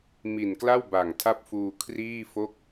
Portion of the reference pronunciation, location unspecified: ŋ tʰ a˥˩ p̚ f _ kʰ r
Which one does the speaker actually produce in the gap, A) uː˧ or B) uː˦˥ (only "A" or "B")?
A